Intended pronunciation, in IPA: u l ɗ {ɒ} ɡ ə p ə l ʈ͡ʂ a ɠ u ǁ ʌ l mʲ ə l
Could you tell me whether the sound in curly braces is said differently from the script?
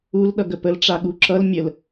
yes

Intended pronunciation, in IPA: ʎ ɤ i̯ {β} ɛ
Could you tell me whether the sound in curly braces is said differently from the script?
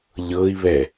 no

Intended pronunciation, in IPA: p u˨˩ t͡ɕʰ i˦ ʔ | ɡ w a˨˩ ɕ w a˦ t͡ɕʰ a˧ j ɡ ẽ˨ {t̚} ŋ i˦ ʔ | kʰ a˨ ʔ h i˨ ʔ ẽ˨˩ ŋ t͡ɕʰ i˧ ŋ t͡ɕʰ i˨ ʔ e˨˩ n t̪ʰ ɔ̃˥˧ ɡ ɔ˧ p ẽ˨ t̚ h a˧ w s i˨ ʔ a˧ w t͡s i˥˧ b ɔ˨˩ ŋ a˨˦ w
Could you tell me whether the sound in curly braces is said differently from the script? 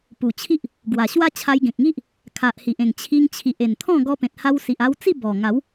yes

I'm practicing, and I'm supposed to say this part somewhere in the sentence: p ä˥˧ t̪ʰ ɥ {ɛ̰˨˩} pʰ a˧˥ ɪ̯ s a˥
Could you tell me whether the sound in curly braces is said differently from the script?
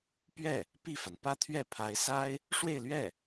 yes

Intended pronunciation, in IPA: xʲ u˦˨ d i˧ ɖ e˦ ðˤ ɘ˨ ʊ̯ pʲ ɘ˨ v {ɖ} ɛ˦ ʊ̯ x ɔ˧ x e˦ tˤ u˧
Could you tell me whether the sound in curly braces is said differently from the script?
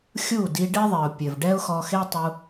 no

